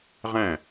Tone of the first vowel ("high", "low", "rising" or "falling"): falling